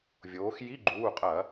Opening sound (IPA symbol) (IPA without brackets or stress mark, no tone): vʲ